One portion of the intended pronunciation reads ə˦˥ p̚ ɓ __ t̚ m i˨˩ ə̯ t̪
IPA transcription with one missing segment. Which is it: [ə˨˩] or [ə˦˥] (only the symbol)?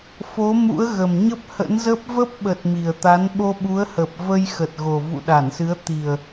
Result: ə˨˩